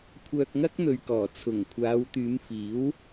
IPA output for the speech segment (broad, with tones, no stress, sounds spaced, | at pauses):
kʷʰ œː˧ k̚ ŋ ɐ˥ k̚ n̪ ɵ˨ ɥ k ɔː˨˩ t͡sʰ ʊ˨˩ ŋ kʷʰ aː˨˧ w t̪ yː˨˧ m f iː˨˥ w